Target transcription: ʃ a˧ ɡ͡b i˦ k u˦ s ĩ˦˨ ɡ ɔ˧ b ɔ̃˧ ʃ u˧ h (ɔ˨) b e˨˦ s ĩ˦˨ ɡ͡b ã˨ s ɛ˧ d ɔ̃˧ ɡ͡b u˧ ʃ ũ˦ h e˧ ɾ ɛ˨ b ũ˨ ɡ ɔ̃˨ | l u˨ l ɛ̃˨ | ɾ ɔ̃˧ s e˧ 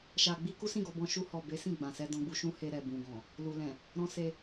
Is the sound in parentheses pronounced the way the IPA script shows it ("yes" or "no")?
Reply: yes